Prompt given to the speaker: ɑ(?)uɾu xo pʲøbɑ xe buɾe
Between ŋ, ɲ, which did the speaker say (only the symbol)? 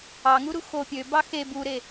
ŋ